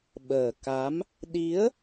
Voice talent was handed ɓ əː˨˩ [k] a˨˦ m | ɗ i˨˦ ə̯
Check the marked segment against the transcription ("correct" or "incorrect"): correct